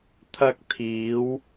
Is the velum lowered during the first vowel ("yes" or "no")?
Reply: no